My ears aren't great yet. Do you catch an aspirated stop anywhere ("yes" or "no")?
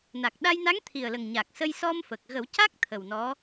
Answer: yes